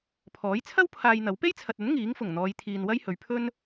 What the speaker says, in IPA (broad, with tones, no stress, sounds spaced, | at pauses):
pʰ ɔː˨˥ j t͡sʰ ɐ˥ w pʰ aː˧ j n̪ ɐ˨˥ w p e˥ j t͡sʰ ɐ˨ t̚ ɵ˨˥ n ŋ iː˨˥ ŋ f ʊ˨˩ ŋ n̪ ɔː˨˧ j t̪ʰ iː˨ n w ɐ˥ j h ɵ˨˧ ɥ pʰ ɵ˥ n